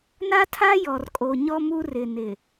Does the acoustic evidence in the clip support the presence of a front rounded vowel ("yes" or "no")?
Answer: no